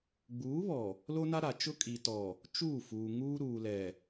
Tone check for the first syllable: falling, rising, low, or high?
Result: rising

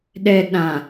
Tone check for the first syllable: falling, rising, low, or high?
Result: low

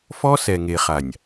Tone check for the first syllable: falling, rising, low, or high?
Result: high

